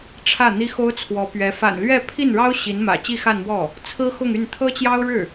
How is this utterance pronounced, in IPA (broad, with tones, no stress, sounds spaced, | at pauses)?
ʈ͡ʂʰ ä˥˩ n̪ i˥ x o˥ ʊ̯ t͡sʰ w ɔ˧˥ p ɥ ɛ˧˥ f a̰˨˩ n l ɥ ɛ˥˧ pʰ i˥˩ n ɻ ɑ˥ ʊ̯ ɕ i˧˥ n m ä̰˨˩ t͡ɕ i˥˧ x a˥˧ n m w ɔ˥˩ | t͡sʰ ɹ̩˥ x ʊ˥˧ ŋ y˥˩ n t̪ʰ ɤ˥ t͡ɕ j ɑ˥ ʊ̯ ɻ ɻ̩˥˩